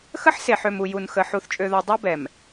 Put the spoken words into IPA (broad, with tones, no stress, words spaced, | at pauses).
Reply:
xə˦ħse˨ħø˨m u˨ju˨n xə˨ ħu˨θt͡ʃʼø˨ðɔ˨ dˤø˦bɛ˨m